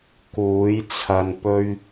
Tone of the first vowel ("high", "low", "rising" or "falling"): rising